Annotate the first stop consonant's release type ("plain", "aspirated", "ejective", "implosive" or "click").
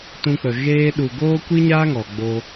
plain